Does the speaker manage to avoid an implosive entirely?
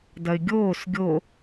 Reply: yes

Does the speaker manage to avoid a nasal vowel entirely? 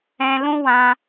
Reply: no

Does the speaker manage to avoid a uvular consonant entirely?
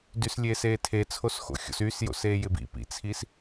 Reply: yes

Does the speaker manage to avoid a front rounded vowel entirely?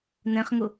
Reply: yes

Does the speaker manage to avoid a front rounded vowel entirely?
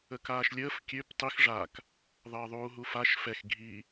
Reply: no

